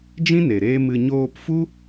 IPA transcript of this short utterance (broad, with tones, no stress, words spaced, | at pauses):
d͡ʒĩ˦ ne˨ɾeː˦mɨ˧ ɲoː˧pfu˦